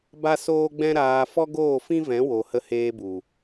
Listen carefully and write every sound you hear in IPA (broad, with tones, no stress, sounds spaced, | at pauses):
b a˦ s oː˦ ɡ͡b ɛ̃˦ ɾ aː˧ f ɔ˦ ɡ oː˦˨ f ĩ˦ v ɛ̃˨˦ w o˨ h ə˧ h eː˧ b u˨